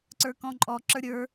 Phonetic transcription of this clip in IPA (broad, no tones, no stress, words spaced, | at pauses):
ǀə˞kɔ̃ǃʼɔ ǁə˞ɾʲə˞